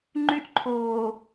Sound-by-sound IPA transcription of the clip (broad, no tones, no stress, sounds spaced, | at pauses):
ŋ͡ǃ y ʔ ǃʰ oː